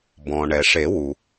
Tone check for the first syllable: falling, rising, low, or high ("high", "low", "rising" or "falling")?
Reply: low